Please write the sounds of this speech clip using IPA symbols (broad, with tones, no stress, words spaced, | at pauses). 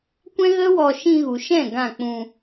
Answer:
kʷɛ̃˦ɣə˦wɔ˧ ʃĩ˧ɣu˨ʃɛ̃˦˨ ɡã˦˨k͡pũ˧